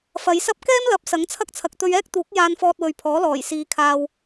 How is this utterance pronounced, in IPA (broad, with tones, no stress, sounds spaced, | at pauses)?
f ɐ˨˧ j s ɐ˥ p̚ k ɛː˥ m l ɐ˨˥ p̚ s ɐ˨˥ ŋ t͡sʰ ɐ˥ k̚ t͡sʰ ɐ˨ k̚ t̪ ɵ˧ ɥ ɛː˥ k̚ t̪ uː˨˥ k̚ j aː˧ n f ɔː˧ t̚ w ɵ˨ ɥ pʰ ɔː˨˥ l ɔː˨˩ j s iː˨˧ kʰ aː˧ w